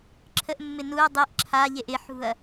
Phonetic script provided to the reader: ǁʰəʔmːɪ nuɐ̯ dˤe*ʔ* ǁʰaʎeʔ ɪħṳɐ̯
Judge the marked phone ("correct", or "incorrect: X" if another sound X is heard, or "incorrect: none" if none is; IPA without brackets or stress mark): correct